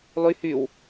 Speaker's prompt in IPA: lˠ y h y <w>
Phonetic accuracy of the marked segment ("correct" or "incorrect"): correct